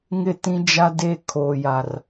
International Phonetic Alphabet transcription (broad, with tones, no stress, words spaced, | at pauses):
ŋɪ˦˨tĩ˦d͡ʒa˦de˦ kʰoː˨ja˨r